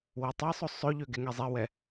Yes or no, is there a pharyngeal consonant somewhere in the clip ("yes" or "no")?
no